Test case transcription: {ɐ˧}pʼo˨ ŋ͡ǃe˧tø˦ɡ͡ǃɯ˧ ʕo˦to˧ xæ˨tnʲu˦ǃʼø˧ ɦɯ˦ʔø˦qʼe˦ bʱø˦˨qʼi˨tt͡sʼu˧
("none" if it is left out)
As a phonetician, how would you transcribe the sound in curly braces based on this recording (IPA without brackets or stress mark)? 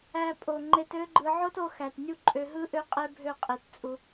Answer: æ˧